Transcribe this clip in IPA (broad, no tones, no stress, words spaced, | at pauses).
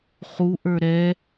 χuʔə˞ ɾɛ